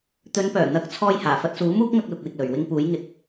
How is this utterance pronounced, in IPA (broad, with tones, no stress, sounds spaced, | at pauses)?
t̪ ɵ˨˧ n p œː˨˩ n̪ ɐ˨˥ k̚ t͡sʰ ɔː˧ j h aː˨˩ f ɐ˧ t̚ s uː˨˥ m uː˥ k̚ ŋ ɐ˧ k̚ l ʊ˨˥ k̚ w ɪ˧ k̚ l ɵ˨ ɥ w ɪ˥ ŋ p uː˨˥ j ŋ ɪ˨˥ k̚